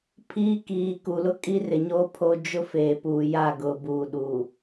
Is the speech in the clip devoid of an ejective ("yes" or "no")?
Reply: no